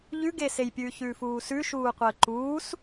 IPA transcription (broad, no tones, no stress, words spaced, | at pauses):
ʎʉɡeːsejpʲʉː çʉːfuːsʉ ʃuːqʷəːǃuːs